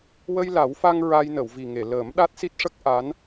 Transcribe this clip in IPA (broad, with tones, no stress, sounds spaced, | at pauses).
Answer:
w ə˧ j l a˨˩˦ w f a˧ ŋ ɹ a˧ j n ə˨˩˨ w v i˨˩ ŋ e˨˩˨ l əː˨˩˦ m ɗ a˦˥ t̚ s i˦˥ t̚ ʂ ə˦˥ k̚ ʔ a˧˥ n